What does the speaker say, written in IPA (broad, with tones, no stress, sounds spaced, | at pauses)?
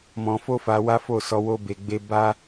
m ɔ̃˧ f o˦ f a˧ w a˦ f o˦˨ s ɔ˧ w o˦ b e˧ ɡ͡b e˦ b a˦